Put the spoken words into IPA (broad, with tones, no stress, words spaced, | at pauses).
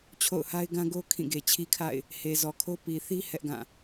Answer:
t͡ɕʰo̰˦˨ʊ̯ha˦ɪ̯ ɡã˦ɡo˦ kʰĩ˦˨ɡe˨t͡ɕʰi˦kʰa̰˦˨ɪ̯ | he˨ zɔ˨kʰo˦ pi˨θi˦ hɛ˦ʔɡã˦˨